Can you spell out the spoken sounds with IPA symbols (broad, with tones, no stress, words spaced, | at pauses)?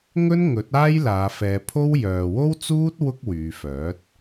ŋɵ˥nŋɵ˨˥t̚ aː˥jlaː˨˧fɛː˨˧ pʰo˥w jœː˨wo˥wt͡suː˥t̚ wʊ˥k̚wyː˨˧fœː˨˥t̚